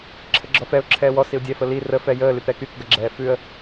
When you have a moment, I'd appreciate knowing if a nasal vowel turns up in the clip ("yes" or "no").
no